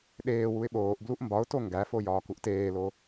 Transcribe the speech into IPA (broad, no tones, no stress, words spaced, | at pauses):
ɗeː wuɪ̯ɓoːʔbluʔ mbɒʊ̯to ŋɡæfo jɒːkuʔteːlo